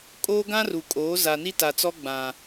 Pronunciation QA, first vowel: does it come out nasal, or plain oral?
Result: oral